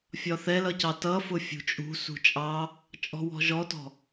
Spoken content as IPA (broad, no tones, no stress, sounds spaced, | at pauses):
fʲ ɒ θ ɛ l ʌ c ɑ t ʌ f ʊ fʲ ṳ t͡ʃʼ ṳ s ṳ t͡ʃʼ ɑ | t͡ʃʼ ɔ̤ w ɔ̤ ʒ ɔ t ɔ̤